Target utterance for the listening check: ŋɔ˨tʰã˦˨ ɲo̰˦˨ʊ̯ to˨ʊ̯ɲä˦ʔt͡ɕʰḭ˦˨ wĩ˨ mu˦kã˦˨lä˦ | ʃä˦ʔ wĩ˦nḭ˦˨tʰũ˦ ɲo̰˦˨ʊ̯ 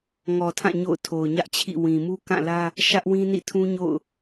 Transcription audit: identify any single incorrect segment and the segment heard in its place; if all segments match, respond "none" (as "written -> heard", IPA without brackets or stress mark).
t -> tʰ